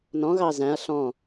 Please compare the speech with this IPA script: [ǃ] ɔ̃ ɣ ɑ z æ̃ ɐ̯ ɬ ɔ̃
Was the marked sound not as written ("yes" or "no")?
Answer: yes